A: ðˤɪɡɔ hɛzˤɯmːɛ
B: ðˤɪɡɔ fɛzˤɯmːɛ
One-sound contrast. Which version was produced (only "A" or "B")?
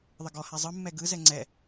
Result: A